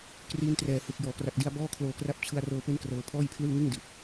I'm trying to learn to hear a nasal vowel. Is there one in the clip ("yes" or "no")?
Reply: no